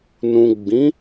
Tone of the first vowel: low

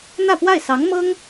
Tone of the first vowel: falling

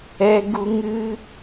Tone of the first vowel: high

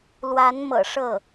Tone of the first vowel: rising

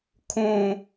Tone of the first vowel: high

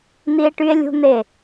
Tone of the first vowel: high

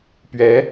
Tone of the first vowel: rising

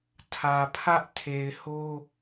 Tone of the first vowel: low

